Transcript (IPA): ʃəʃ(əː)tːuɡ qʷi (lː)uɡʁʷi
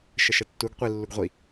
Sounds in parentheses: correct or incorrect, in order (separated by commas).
incorrect, correct